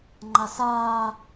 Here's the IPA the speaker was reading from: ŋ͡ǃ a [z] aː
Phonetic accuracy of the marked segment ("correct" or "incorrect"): incorrect